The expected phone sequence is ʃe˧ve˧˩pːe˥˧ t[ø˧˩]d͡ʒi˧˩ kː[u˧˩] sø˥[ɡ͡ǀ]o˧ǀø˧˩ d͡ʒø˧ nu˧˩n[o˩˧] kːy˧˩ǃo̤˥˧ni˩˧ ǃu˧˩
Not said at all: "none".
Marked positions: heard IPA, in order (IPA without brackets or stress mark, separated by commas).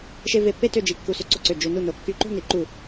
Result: ø˥˧, u˧˩, ǀ, o˩˧